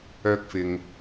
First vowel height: mid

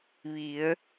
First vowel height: high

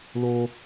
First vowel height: mid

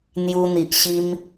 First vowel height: high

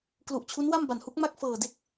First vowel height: high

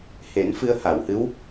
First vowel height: mid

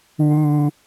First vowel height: high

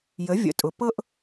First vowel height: mid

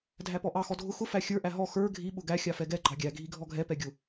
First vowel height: low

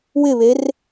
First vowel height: high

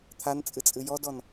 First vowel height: low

